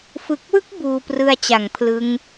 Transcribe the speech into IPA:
f ɯ˨˩ k̚ w ɯ˦˥ k̚ b uː˧ p r ɯ˧ a̯ t͡ɕ a˩˦ ŋ pʰ l ɯ˦˥ ŋ

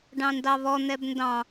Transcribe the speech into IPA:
ɖ ɑ̃ n d ɑ β ɔ n̪ ɛ b n d ɑ̃

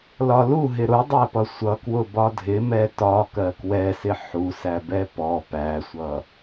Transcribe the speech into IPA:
l ɒ l u ɦ ɪ ɾ ʊ dˤ æ p ʌ sʷ ʌ k w ʊ b ɒ dʱ ɪ m ɛ t ɒ k ɜ k w ɛ s ɪ ħ u s æ b ɛ p ɔ p æ sʷ ʌ

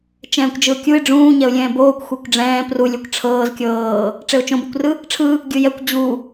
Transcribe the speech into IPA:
t͡ʃ ɛ̃ː kʷ d͡ʒ ɯ ʊ̯ kʲ u ɪ̯ ɖ͡ʐ ũː ɲ ɛ ʊ̯ lʲ ɛ̃ː b oː kʷ xʷ e kʷ ɖ͡ʐ ɛ̃ː p r u lʲ ɛ kʷ ʈ͡ʂʰ ɤː z kʲ ɤː | ʈ͡ʂ e ʊ̯ t͡ʃ õ b e kʷ r ɯ | ʈ͡ʂʰ ɯ | ɡʲ ɯ j ɛ kʷ d͡ʑ u

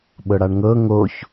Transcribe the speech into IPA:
ɓ ɤ ɽ a ɳ ŋ ɤ ŋ o ç

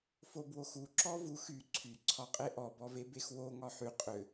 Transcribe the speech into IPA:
f o b w o x u ǁ ɔ v u x y ǀʰ y ǀʰ ɒ qʼ e ʔ ɔ b ɔ v e b e x w o ŋ ɒ ħ y qʼ ʏ

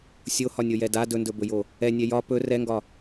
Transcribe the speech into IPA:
sʲ o h ɒ nʲ o j ɛ d a d ɵ n d ɵ b ɵ j o | ɛ nʲ ɛ j ɒ p ɵ r ɛ ŋ ɡ ɒ

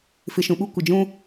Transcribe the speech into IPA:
f ɪ˨ ʃ ũ˨ ɓ u˦ kʷ ɪ˨ d͡ʒ ũ˦

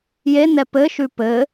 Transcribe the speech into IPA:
j e n ɛ p ɘ ʃ ʉ p ɘ

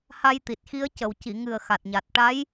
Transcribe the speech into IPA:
h a˧ j t̪ i˨˩ t̚ x i˧˥ ə̯ c ə˨˩ w c i˨˩˨ ŋ ɨ˨˩ ə̯ x a˨˩ t̚ ɲ a˨˩ t̚ ʈ a˧˥ j

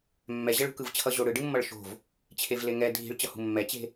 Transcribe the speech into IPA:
mː ɛ ʑ ɛ ɭ ṳ k ɯ v t͡ɕʰ ʌ ʑ o ɽ ɯ ɖ ɯ mː ʌ ɭ ʃ o̤ v | t͡ɕʰ e v l e ŋ ɛ dʱ i̤ ɭ t͡ɕ ʌ h ṳ mː ɛ t͡ɕ e̤

